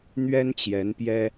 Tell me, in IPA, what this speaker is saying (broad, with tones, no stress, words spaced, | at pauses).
n̪ɥɛ˦nt͡ɕjɛ˨˦npjɛ˦